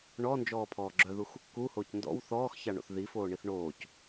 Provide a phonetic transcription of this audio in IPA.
ɳ ɔ n d͡ʒ ɔː pʰ ɔː ɡ͡ǁ œ ð u x | k u h oː c n d ɔ̰ w θ ɔː x ç a ɳ o̰ θ ð i f oː ɳ i θ ɳ oː c

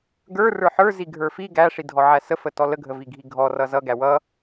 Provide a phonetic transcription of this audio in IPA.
ɡ ə˞ r ə˞ ħ ə˞ z i ɡʱ ə˞ f i ɡ æ ʂ i dʱ ɔ ʕ æ s ə f ə t ɔ l ə ɡʱ ə v i ɡʱ i ɡʱ ɔ r ʌ z ʌ ɡ æ w ʌ

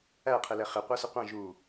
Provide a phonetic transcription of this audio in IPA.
æ qʰ ɪ l ɛ χ ɪ qʷ ə˞ s ɪ qʷ ɑ̃ ʒ u

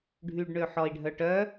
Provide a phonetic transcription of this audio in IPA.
ɖʱ y ɖ ɳ ø ħ ɔ i̯ ɖʱ œ ʈ œ

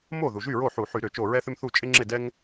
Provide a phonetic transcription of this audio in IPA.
m o˥˩ ð u˩ ʒ y˥˩ ɹ o˥˩ ħ u˧˩˧ ħ y˧˩˧ ɾ ʏ˧˩˧ t͡ʃ o˧˩ ɹ ɛ˥ θ ʏ˥ m θ u˥˩ t͡ʃʼ ɪ˥ ŋ͡ǁ ɪ˥˩ d ɛ˥ ŋ

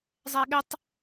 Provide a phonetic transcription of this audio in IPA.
zˤ ɛ ɐ̯ ɠ ʏ tˤ

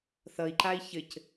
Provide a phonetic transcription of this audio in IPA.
θ ʌ i̯ ǃ a i̯ ç ɘ c

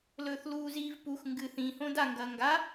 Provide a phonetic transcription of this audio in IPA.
l ɵː θ l uː z iː v p u x ŋ ɡ ɨ θ ĩ h õ d a ŋ ɡ ɐː ŋ ɡ a

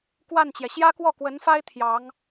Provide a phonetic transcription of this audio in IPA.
k w a˥˩ n t͡ɕ j ɛ˩ ɕ j ä˥ k w ɔ˥˩ k w ə˧˥ n f a˥ ɪ̯ t̪ʰ j ɑ˧˥ ŋ

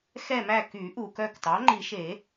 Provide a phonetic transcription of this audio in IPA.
x ɛ˦˨ m æ˦˨ k y˨˩˦ ʔ u˩ k œ˦˨ k t ɑ˩˥ ŋ͡ǃ i˨˩˦ ʃ e˨˩˦

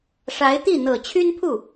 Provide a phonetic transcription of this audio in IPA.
ʂ a˧˥ ɪ̯ t̪ i˥˩ n̪ ɤ˨˩ t͡ɕʰ y˥ n pʰ u˥˩

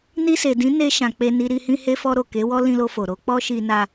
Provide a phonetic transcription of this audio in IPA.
n i˧ s e˨ d ĩ˨˦ n e˧ ʃ ã˨ k͡p e˧ n i˧ ɾ i˧ h ĩ˧ h e˧ f ɔ˧ ɾ o˨ k e˨˦ w ɔ˦ l ĩ˧ l o˧ f o˨ ɾ o˨˦ k͡p ɔ˦ ʃ i˧ n a˧

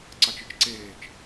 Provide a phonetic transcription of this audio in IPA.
ǀ ɑ t͡ʃ ɯ t͡ʃ ǀ eː t͡ʃ

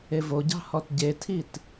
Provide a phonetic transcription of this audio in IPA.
e v o ɟ ɑ̤ h ɔ t ɟ e tʰ i t

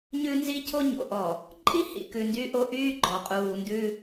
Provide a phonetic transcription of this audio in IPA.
ɲ ʉ˦ n z i˦ cʰ o˦ ɲ o̰˨ ʔ ɔ˨ | ǃʼ i˦ h ḭ˨ k ʉ˨ n d y˦ ʔ o˦ ʔ yː˦ ɡ͡ǃ ɔ˨ qʼ uː˨ n d ʉ˦

